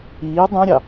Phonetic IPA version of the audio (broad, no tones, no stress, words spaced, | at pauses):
iː dˤũɾʲɑ